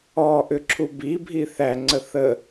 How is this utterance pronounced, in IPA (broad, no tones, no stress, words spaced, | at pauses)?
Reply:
ɔ ʔʏǁʰubi bʱiθæ ŋ͡ǀəθə